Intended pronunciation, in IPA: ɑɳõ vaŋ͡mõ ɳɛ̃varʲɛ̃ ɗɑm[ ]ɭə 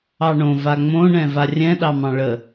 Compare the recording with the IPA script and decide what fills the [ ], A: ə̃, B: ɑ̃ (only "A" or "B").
B